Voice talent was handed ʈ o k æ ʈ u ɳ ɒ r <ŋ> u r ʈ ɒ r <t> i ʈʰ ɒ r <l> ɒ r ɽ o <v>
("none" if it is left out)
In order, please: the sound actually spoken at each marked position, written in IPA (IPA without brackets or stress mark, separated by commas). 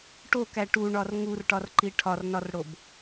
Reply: ŋ, ǃ, n, b